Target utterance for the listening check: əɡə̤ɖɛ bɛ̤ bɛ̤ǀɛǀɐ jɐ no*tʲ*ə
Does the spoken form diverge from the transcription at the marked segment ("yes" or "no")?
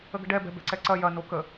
yes